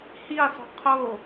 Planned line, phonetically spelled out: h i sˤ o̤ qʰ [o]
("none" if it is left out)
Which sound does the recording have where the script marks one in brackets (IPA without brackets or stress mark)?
o